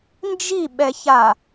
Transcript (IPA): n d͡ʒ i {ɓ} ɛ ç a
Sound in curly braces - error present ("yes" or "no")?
no